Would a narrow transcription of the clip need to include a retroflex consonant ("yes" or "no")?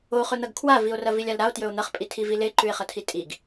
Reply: no